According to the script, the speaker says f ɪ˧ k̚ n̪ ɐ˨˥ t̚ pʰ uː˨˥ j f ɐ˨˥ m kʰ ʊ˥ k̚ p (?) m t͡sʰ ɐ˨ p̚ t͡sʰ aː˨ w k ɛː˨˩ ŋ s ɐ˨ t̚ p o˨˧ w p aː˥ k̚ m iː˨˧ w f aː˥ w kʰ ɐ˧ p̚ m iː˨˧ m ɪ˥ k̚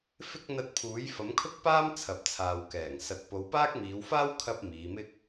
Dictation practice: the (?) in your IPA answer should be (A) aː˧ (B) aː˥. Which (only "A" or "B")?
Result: B